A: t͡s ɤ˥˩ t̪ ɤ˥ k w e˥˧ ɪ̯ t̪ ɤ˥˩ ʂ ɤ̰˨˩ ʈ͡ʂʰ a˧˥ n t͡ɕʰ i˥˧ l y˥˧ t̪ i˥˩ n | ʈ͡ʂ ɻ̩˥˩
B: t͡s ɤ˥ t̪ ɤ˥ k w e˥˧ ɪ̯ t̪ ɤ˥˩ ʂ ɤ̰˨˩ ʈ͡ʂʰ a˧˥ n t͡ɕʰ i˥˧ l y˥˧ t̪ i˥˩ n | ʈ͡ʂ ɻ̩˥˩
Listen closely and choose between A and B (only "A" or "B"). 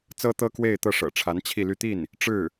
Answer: B